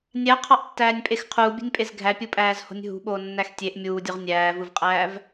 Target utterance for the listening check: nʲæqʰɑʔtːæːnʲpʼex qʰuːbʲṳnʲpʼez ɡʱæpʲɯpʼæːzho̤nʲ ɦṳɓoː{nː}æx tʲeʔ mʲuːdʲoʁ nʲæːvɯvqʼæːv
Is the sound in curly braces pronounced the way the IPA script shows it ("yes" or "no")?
yes